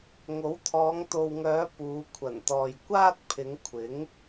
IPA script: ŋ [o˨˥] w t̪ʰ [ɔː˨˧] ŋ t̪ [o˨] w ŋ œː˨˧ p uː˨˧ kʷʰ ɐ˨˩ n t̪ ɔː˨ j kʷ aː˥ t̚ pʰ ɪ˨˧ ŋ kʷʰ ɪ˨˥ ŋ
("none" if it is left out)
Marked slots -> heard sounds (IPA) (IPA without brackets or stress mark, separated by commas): o˨˥, ɔː˨˧, o˨